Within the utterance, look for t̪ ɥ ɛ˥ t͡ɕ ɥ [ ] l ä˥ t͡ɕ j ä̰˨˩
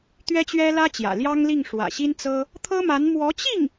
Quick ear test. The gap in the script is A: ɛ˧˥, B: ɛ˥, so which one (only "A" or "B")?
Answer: B